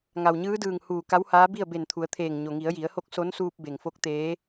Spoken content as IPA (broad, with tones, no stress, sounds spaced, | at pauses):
ŋ a˩ w ɲ ɯː˧˥ d ɯː˧˩ ŋ h uː˧˩ k a˧˥ w h aː˧˥ b i˥˨ ə̯ b e˧˩ n t̪ʰ u˩˧ ə̯ t̪ʰ eː˧˩ ŋ ɲ o˩ ŋ i˩˧ ə̯ j i˩˧ ə̯ h o˧˥ k̚ s o˧˥ n s uː˧ p̚ b e˩ ŋ f o˧˥ k̚ t̪ eː˧˥